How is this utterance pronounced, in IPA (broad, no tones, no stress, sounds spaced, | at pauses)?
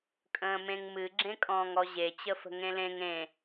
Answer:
kʼ ə̃ː m ẽ ŋ m ɨ ɡ͡ǁ ẽ kʼ ɔ̃ː ŋ ɔ ʑ e t͡ɕ ə f ə̤ ŋ ẽ l ẽ ŋ ẽ